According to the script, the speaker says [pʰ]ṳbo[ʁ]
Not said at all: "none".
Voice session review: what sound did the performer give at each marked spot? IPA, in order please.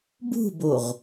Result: b, ʁ

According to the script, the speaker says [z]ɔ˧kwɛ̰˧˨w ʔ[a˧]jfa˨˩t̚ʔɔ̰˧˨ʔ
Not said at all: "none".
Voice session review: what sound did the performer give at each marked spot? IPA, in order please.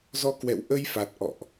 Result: z, ə˧

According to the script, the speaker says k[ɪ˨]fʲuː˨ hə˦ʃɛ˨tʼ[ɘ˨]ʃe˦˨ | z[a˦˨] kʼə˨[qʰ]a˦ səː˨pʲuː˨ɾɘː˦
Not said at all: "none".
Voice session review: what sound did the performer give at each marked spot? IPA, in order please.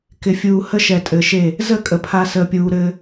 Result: ɪ˨, ɘ˨, ə˦˨, pʰ

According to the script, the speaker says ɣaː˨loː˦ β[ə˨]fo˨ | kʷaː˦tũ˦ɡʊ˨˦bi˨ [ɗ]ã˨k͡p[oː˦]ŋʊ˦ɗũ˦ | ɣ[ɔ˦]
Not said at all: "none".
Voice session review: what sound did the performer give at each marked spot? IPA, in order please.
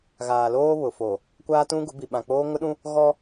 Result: ʊ˨, ɓ, oː˦, ɔ˦

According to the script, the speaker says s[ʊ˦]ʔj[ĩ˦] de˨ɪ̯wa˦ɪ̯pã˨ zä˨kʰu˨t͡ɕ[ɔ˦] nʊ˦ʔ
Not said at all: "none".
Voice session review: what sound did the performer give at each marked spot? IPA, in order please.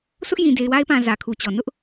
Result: ʊ˦, ĩ˨, ɔ˨

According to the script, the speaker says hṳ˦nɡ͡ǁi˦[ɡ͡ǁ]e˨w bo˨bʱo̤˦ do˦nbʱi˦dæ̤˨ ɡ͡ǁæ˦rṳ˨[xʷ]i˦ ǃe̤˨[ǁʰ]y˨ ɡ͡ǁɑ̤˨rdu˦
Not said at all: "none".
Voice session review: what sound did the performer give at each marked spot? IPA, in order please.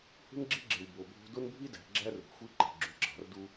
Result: ɡ͡ǁ, xʷ, ɡ͡ǁ

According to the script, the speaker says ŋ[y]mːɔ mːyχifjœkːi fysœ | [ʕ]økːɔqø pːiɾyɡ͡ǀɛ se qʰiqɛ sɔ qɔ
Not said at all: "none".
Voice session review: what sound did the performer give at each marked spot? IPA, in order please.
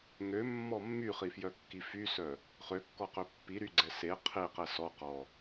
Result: ø, χ

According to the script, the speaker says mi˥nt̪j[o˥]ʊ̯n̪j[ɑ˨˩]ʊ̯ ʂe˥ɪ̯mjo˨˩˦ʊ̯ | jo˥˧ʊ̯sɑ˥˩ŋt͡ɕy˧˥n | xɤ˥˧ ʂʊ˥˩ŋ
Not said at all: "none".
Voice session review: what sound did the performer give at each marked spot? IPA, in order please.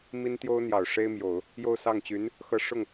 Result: o˥, ɑ˨˩

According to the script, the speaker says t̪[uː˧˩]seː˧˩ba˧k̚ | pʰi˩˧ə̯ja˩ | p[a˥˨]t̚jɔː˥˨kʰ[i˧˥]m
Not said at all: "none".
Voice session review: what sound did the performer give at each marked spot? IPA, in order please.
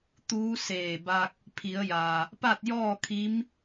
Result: uː˧˥, a˥˨, i˧˥

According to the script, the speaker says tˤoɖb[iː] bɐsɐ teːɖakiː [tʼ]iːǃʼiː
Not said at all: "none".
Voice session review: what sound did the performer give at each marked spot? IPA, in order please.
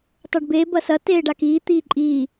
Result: eː, t̪

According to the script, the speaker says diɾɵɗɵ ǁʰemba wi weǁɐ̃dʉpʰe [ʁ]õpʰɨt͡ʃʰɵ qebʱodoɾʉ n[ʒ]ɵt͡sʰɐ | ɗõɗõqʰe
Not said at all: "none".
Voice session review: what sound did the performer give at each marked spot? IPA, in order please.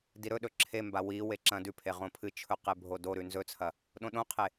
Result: ʁ, z

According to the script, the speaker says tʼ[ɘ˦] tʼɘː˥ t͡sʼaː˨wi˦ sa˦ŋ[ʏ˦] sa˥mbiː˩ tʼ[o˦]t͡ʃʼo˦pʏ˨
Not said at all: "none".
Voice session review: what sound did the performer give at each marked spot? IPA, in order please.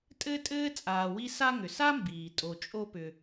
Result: ɘ˦, ʏ˩, o˨

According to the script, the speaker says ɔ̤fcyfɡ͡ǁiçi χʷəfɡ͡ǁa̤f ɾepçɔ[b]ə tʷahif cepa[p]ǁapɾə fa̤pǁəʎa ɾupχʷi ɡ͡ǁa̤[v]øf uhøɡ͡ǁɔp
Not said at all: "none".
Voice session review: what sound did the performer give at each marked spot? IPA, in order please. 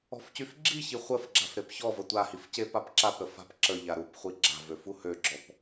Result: v, p, v

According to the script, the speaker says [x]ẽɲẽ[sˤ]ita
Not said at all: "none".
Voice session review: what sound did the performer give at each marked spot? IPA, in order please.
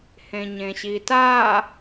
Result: h, ɕ

